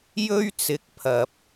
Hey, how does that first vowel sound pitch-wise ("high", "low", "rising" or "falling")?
high